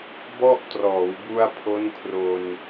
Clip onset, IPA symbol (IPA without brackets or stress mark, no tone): b